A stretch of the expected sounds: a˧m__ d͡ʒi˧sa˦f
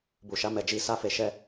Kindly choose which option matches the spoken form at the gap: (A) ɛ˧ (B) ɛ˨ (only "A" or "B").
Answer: B